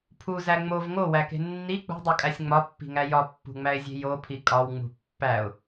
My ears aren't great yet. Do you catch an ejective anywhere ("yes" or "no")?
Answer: yes